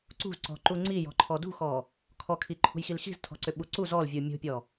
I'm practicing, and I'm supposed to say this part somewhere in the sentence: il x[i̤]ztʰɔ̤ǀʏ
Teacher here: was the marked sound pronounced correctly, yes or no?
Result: yes